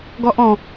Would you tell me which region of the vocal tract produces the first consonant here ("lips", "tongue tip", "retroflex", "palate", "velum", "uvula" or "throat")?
velum